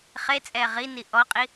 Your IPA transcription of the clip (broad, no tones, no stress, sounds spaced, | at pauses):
χ e t͡sʼ ɛː ʁ i n i ʔ ɔ qʼ i